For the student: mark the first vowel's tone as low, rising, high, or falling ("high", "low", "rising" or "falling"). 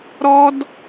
high